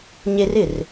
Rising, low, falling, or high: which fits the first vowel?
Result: high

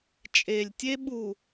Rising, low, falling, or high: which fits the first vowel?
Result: low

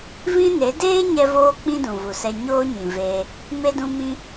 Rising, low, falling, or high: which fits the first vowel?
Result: high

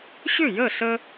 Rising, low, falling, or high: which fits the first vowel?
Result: falling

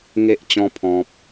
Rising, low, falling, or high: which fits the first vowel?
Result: high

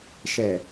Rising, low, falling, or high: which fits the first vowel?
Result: low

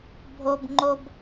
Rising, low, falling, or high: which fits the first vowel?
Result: high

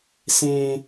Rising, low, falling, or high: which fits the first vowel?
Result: high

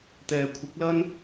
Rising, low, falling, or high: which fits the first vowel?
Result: low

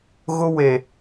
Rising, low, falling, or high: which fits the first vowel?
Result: high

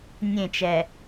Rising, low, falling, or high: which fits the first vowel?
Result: falling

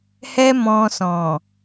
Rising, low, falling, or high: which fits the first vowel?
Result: high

